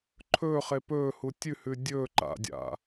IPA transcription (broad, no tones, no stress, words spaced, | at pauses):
ǃʰɵːχe pɵː hutʲʉhʉ dʲɵ ǃa̰dʲa̰